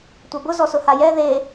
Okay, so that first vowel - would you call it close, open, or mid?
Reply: open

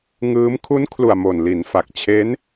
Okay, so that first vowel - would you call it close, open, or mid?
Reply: close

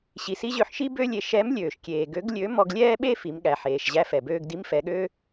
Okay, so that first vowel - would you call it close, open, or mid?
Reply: close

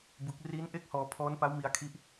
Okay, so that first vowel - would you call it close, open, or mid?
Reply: close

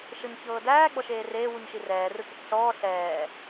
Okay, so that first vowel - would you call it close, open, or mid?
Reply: mid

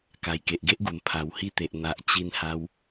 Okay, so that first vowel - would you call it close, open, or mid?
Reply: open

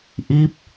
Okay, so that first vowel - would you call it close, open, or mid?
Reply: close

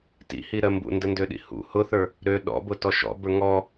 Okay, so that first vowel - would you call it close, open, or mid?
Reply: close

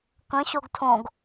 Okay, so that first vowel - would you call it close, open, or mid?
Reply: mid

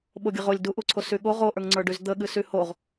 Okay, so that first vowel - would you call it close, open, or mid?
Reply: mid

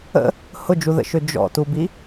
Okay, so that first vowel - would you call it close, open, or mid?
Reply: mid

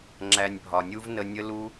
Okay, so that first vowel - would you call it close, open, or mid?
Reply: open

